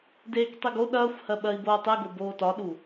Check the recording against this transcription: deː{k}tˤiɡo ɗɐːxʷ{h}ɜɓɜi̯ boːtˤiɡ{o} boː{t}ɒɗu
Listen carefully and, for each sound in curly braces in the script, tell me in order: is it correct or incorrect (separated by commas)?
correct, correct, correct, correct